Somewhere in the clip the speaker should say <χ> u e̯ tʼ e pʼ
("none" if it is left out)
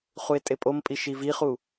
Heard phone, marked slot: χ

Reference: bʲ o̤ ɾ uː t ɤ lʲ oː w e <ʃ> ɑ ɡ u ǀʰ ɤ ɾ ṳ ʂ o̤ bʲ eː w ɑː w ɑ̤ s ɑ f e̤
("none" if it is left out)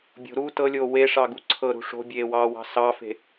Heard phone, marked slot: ʂ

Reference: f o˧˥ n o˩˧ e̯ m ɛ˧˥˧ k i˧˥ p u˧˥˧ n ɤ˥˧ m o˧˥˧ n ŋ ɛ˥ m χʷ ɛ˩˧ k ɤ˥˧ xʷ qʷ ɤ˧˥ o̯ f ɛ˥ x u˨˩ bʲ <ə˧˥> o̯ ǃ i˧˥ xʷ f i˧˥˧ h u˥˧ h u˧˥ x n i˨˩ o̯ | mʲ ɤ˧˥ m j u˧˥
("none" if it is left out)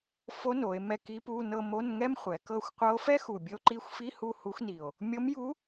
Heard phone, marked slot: ə˧˥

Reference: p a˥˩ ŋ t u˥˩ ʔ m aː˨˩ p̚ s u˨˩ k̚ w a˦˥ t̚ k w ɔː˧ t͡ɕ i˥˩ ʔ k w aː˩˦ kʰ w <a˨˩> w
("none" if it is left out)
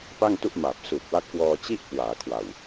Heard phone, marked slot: a˨˩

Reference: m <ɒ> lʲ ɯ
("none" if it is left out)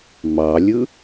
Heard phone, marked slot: ɑ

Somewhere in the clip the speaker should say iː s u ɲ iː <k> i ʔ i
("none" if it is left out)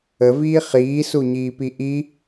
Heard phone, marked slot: p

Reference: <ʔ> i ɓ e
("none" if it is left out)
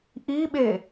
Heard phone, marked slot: ʔ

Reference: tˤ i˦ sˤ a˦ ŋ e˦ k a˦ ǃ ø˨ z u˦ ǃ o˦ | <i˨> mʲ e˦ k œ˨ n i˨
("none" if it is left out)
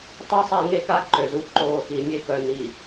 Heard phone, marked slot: i˨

